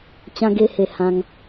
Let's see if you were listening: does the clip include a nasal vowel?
yes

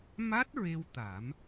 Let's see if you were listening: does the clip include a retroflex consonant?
no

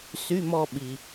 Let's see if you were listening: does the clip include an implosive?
yes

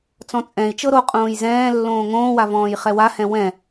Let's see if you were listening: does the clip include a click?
no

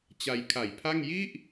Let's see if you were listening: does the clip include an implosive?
no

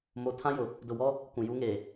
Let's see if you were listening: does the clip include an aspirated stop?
yes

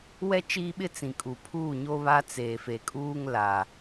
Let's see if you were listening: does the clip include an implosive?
yes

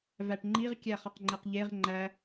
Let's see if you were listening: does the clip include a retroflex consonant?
yes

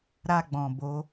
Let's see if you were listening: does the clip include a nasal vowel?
yes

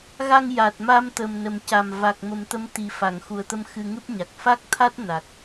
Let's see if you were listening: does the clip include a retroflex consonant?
no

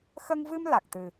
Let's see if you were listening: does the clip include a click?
no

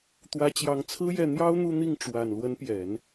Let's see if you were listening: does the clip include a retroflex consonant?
yes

